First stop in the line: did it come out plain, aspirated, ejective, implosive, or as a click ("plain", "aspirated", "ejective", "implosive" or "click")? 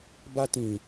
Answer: plain